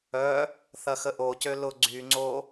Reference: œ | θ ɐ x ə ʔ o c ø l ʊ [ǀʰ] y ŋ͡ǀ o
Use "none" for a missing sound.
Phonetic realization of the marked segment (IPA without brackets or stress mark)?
ɡ͡ǀ